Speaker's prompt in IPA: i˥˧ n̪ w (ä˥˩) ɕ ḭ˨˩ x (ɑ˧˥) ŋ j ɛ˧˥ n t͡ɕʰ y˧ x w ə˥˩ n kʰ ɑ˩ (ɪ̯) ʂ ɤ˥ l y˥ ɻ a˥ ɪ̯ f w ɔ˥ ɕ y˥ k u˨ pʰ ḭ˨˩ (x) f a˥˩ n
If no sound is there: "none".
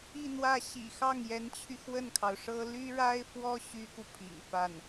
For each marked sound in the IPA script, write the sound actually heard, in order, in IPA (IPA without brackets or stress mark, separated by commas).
ä˥˩, ɑ˥˩, ʊ̯, ŋ